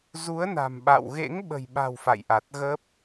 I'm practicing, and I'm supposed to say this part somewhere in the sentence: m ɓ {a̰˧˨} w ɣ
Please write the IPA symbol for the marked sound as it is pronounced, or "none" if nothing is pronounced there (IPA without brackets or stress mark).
a̰˧˨